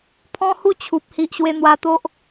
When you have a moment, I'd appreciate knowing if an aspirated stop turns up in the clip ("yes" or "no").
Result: yes